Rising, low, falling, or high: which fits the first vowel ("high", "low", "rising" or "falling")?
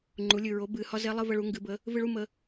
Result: rising